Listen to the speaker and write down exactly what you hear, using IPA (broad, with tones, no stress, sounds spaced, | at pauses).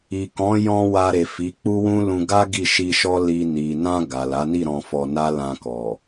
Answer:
i˨ k ɔ̃˨˦ j ɔ̃˧ w a˧ ɾ e˨ f i˨˦ k͡p u˦ w ũ˦ l ũ˧ ɡ a˦ ɡ i˦˨ ʃ i˧ ʃ ɔ˦ l i˧ n i˨ n ã˧ ɡ a˨ l a˨˦ n i˦˨ ɾ ɔ̃˧ f ɔ˧ n a˦ l ã˧ k ɔ˨